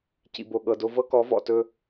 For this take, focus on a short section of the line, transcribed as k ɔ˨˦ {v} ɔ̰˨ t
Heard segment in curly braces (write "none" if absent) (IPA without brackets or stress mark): v